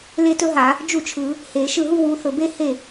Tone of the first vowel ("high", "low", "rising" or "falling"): falling